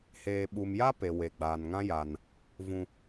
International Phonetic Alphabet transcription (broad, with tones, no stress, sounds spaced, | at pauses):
h eː˨ ɓ u˨ m j a˦ p e˨ w e˨ ɡ͡b aː˨ n ŋ ã˦ j a˦ n | v ũ˦